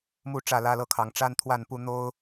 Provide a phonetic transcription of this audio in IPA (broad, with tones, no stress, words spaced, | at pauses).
mu˥˨ ʈ͡ʂä˥˨lä˦lɤ˥˨kʰɑ˨˦ŋ ʈ͡ʂa˦nt̪ʰwa˥˨npu˦ n̪o˦ʊ̯